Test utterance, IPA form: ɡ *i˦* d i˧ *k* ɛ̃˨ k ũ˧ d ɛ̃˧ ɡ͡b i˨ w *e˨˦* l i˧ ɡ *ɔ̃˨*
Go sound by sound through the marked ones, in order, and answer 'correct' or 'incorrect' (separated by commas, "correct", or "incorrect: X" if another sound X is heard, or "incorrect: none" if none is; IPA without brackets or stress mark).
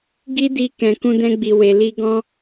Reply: correct, correct, incorrect: e˨, incorrect: ɔ̃˦